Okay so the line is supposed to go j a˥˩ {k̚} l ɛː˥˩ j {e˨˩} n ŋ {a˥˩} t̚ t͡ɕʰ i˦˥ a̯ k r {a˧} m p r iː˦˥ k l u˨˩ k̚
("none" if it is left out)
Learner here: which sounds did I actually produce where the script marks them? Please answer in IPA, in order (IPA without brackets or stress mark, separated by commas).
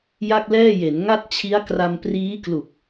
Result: k̚, e˩˦, a˥˩, a˧